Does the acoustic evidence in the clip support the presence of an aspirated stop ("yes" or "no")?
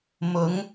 no